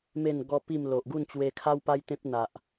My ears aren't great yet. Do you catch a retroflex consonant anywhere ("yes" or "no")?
no